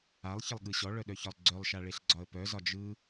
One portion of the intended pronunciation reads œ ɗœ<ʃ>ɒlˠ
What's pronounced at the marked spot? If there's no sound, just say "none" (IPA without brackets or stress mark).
ç